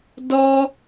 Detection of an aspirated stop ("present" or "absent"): absent